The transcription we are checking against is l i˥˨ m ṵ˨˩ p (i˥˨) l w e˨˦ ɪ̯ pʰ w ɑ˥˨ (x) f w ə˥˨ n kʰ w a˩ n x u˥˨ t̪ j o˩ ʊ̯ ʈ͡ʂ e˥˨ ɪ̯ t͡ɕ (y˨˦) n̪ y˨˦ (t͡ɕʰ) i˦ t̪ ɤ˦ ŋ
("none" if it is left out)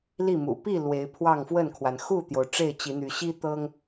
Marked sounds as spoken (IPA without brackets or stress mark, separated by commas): i˥˨, ŋ, i˨˦, ɕ